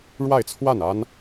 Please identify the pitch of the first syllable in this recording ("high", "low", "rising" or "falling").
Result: falling